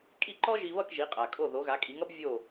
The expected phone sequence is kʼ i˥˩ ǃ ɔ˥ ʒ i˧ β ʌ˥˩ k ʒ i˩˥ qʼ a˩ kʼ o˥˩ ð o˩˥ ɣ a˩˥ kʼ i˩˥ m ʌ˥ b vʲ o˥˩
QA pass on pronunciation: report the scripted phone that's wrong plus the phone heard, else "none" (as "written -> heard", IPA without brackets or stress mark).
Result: m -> ŋ